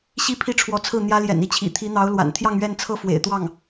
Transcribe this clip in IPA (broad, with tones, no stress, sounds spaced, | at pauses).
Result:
ɕ i˥ pʰ i˥˩ ʈ͡ʂʰ w ɔ˧˥ t͡sʰ ɹ̩˥˩ n̪ j ä˥ l j ɛ̰˨˩ n i˥˩ t͡ɕʰ ḭ˨˩ t̪ʰ i˧˥ n̪ ɑ˧˥ ʊ̯ l w a̰˨˩ n t̪ʰ j ɑ˥˧ ŋ ɥ ɛ˥˧ n t͡sʰ ɤ˥˩ f w ḛ˨˩ ɪ̯ t̪ w ɑ˥˩ ŋ